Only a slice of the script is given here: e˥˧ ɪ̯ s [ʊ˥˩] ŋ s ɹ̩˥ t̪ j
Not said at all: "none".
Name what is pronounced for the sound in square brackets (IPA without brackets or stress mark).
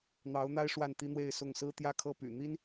ʊ˥˩